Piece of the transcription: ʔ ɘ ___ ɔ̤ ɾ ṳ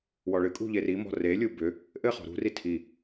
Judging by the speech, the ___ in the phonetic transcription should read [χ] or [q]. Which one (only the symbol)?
χ